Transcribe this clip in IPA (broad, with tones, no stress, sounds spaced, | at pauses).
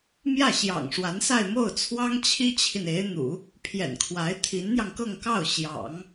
m j ä˥˩ ɕ j ɑ̰˨˩ ŋ ʂ w a˧˥ n s a˥˧ ɪ̯ m o˥˩ ʊ̯ t͡sʰ w ɑ˥ ŋ t͡ɕʰ i˥ t͡ɕʰ i˨ n e˧˥ ɪ̯ n̪ ṵ˨˩˦ | pʰ j ɛ̰˨˩ n kʰ w a˧˥ ɪ̯ t̪ʰ i˧˥ n n̪ j ɑ˧ ŋ k ɤ˥˧ ŋ k ɑ˥˩ ʊ̯ ɕ j ɑ̰˨˩˦ ŋ